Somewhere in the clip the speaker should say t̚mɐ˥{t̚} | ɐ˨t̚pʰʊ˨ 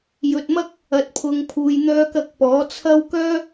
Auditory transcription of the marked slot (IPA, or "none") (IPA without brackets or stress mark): k̚